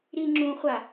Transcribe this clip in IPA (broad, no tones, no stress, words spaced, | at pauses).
ɾiŋ͡ǁũχʷa